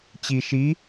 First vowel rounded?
no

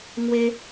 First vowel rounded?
no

